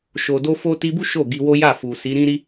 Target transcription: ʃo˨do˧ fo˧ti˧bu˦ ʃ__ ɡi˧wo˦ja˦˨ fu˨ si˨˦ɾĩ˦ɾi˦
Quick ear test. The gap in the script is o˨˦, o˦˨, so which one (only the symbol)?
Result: o˦˨